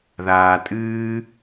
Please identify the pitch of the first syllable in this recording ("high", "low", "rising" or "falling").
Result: low